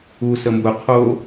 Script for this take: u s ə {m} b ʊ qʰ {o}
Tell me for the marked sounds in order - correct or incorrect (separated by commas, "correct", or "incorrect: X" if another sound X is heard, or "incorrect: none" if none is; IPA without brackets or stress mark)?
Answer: correct, correct